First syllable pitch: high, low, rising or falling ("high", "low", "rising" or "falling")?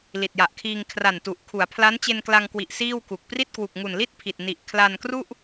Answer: low